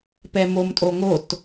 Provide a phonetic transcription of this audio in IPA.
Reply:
pɛmomtʼoŋot

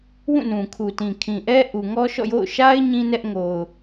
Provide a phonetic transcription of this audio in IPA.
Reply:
wũ˦˨nũ˨kʰu˨tĩ˨ kʰĩ˨ʔɛ˦ ʔu˨ŋɔ˦ʃɔ̰˦˨jo̰˦˨ʊ̯ ʃa˦ɪ̯ ɲĩ˦nɛ˦ʔ ŋo˨ʊ̯

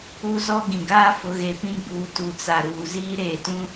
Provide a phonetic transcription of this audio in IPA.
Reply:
u˦zɔ˦ ɡĩ˨ɡaː˦ fʊ˨˦ɣe˨pĩ˦ ɡ͡buː˨ tu˨t͡sa˨ɾuː˨ ziː˦ɾeː˨tũ˦

